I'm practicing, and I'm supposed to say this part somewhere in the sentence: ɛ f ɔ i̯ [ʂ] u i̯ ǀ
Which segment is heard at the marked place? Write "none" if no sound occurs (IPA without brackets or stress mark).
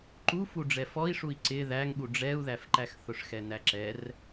ʂ